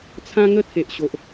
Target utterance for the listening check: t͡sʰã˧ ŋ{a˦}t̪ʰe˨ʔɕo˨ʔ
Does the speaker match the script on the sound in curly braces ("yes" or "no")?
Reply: no